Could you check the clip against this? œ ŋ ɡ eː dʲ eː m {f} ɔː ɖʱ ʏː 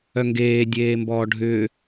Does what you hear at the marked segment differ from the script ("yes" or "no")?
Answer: yes